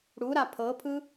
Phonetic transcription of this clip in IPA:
ɽ u ɾ a pʰ ɤ pʰ ɯ

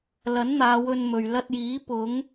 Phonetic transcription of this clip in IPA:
l ɐ˨˥ n n̪ aː˨˧ w ɵ˧ n m ɵ˨ ɥ l ɐ˧ t̚ j iː˨˥ p ʊ˨˧ ŋ

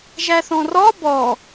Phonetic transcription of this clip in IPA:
ʒ æ θ ɔ̃ r ɔ b ɔ

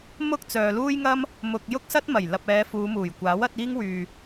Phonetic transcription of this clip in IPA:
m ʊ˥ k̚ t͡s œː˨ l uː˥ j ŋ ɐ˥ m | m ʊ˨ k̚ j ʊ˥ k̚ s ɐ˥ t̚ m ɐ˨˩ j l ɐ˨ p̚ ɛː˨˧ f uː˨˧ m uː˨˩ j kʷ aː˨˥ w ɐ˨˥ t̚ iː˥ ŋ w yː˨

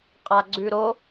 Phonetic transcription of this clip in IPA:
qʼ a ɡ͡ǀ ʉ ɾ o

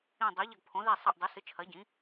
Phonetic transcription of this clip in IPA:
ĩ˦˨ dˤ ɨ˨˥ ʎ ɐ˦˨ ɡ pʰ õ˨˥ ð i˦˨ sˤ ɐ˦˨ ʔ dˤ ʉ˨˥ s ɨ˨˥ t͡ʃʰ ɐ˨˥ ɟ ĩ˨˥

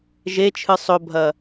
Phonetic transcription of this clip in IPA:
ʒ e t͡ʃʰ ɨ sˤ ɵ bʱ ɐ

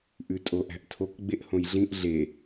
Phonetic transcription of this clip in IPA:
ʔ ʉ tʼ o ʔ æ̤ ʔ tʰ o k ɡ͡b e ʔ h õ j ɮ ĩ ʔ ɮ e

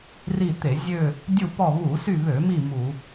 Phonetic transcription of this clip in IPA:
r i˦˨ t̪ e˧˩˧ zʲ ø˦˨ | dʲ u˦˨ p ɔ˦˨ β u˧˩˧ s y˦˨ β ø˧˩˧ m i˦˨ m u˧˩˧

